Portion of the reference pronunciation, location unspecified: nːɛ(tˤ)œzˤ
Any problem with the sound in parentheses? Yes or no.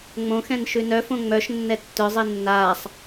yes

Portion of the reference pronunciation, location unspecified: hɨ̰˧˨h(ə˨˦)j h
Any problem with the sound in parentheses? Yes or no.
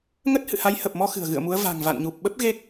yes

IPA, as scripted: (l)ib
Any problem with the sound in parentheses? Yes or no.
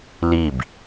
no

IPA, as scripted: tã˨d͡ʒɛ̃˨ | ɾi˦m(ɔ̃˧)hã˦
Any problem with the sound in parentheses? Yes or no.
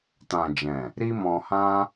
no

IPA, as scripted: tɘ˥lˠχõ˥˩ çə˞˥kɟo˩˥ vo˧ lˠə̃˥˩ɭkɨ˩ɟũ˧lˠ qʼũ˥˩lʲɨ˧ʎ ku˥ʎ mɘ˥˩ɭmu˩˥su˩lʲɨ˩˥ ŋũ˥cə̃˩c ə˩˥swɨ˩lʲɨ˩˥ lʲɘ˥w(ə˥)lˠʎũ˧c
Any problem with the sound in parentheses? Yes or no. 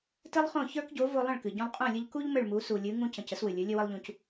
no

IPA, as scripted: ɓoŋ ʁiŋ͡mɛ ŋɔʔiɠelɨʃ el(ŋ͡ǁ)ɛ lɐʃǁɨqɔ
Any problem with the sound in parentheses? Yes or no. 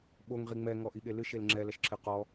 no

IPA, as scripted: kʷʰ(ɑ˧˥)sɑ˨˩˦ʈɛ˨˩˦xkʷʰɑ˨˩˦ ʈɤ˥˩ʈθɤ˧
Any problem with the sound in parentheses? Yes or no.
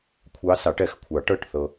no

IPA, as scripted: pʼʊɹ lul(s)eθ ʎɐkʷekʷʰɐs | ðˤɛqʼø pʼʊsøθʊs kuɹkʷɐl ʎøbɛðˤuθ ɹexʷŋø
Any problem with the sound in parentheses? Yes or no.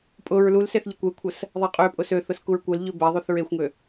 no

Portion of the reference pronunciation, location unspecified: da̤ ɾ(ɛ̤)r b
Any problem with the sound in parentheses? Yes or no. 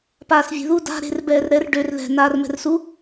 yes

